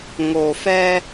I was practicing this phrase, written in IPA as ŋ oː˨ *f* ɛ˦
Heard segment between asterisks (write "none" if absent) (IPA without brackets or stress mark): f